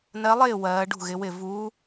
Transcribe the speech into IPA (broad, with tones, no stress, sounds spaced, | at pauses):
n ɜ˨˦ lˠ ɪː˥˩ w ɜː˨˦ ɖ ṳ˥˩ ɣ ɪ˨˦ w ɪ˥˩ v uː˨˦